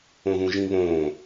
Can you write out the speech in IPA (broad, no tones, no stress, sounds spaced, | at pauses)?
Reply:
õ ð ũ ʒ ĩ β õː